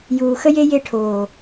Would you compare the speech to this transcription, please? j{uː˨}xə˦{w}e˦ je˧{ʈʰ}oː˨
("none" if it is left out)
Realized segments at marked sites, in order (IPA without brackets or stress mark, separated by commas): uː˨, j, ʈʰ